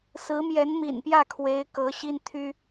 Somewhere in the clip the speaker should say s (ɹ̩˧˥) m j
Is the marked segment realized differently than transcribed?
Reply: no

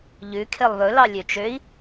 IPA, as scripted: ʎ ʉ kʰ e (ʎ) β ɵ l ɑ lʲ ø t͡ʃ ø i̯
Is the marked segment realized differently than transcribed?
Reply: yes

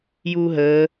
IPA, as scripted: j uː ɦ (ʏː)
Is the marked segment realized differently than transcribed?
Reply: yes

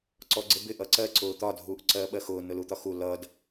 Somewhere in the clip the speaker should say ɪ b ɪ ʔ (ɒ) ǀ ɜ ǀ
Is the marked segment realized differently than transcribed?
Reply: yes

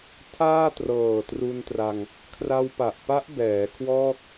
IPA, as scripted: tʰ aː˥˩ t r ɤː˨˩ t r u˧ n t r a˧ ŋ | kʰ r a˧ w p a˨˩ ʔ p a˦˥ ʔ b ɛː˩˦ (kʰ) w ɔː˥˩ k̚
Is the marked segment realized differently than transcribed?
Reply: no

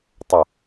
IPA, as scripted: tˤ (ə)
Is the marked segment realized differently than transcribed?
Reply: no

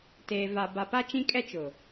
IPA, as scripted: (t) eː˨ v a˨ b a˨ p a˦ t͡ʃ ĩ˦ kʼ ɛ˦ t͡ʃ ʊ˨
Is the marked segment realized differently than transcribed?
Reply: no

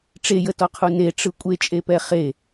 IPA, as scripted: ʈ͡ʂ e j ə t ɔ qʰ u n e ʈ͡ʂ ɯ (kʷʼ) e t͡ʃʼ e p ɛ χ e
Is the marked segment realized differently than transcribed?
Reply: no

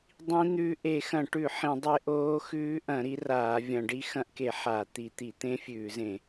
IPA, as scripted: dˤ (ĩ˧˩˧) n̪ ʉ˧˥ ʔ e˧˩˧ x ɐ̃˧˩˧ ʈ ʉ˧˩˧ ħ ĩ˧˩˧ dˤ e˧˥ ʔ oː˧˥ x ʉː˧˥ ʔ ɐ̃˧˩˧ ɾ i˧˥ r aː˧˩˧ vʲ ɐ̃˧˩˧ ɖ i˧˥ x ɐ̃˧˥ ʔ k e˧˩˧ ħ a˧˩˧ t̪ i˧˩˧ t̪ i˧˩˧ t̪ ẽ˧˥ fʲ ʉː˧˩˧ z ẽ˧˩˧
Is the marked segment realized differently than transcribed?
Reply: yes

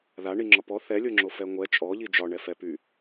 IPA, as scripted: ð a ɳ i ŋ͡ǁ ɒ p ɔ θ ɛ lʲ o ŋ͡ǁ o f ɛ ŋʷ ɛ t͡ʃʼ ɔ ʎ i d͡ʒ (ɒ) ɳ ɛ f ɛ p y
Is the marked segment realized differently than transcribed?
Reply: no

